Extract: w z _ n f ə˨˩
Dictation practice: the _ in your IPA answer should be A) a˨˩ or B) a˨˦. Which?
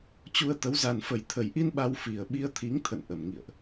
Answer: A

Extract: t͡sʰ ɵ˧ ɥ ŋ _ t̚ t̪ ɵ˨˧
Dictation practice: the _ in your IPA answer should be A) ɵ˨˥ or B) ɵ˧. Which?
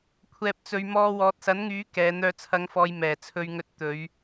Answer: B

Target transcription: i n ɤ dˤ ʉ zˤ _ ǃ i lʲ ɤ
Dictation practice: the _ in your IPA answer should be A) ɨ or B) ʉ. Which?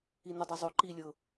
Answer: B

